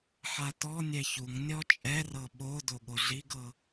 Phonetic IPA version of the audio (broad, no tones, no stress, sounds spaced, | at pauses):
ħ a t ɔ nʲ ɛ ç u ŋ nʲ ɔ t͡ʃʼ ɛ r ɤ ɓ o d o ɠ o ɮ i ɡ ɤ